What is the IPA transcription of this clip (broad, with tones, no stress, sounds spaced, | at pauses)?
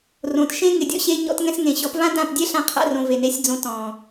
r õ˨ t ʃ ẽ˦ ŋ ɪ˨ dʲ ɔ̰˧ ɕ e˧ ɲ ɔ̰˧ t ŋ ɛ̃˧ s ŋ ẽ˨ ɕ ɔ˨˦ p v ã˦ d ã˦˨ p dʲ ɛ˦ ɬ ã˦ qʰ a̰˦ r õ˧ v e˨ n e˧ sʲ d͡z õ˧ t ɔ̃˨